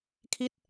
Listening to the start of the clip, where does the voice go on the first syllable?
falling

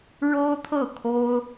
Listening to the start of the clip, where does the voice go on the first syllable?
high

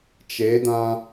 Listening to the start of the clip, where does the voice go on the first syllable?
rising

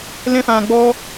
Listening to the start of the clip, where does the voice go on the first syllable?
high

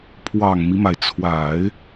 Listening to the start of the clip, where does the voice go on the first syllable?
low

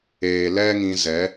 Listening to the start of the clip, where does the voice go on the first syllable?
low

